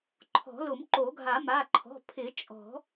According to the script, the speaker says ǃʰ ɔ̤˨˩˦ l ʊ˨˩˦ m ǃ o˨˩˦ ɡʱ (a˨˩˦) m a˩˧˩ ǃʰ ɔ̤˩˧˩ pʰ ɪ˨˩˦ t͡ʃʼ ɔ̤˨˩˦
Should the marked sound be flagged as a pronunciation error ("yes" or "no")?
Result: no